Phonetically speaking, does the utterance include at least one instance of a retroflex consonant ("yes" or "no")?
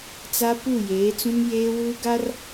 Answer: no